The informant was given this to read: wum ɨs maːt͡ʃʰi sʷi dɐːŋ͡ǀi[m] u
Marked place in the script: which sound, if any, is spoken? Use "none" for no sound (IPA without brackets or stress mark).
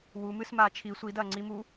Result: m